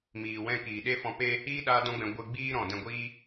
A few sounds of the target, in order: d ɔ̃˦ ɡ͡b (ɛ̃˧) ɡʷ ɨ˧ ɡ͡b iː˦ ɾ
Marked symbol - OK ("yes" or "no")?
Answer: yes